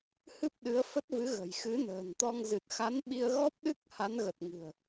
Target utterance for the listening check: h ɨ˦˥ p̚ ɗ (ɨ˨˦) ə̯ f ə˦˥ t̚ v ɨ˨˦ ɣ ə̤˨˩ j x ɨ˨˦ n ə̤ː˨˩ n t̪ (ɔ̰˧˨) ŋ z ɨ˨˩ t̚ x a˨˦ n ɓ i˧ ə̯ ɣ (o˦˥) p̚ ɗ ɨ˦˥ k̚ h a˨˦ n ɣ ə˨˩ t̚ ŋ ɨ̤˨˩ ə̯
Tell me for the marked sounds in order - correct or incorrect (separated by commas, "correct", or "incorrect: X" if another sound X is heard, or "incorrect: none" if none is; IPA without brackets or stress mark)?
correct, incorrect: ɔ˧, incorrect: ɔ˦˥